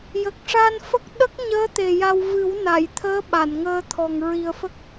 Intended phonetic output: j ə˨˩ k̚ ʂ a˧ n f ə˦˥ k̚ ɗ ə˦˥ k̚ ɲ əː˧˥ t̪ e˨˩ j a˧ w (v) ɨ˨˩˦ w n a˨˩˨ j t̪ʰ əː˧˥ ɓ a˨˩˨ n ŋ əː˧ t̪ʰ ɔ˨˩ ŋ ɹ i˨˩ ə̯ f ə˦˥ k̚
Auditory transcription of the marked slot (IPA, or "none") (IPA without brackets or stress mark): v